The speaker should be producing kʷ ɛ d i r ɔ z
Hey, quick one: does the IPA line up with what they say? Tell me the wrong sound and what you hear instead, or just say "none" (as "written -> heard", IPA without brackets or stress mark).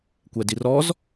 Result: none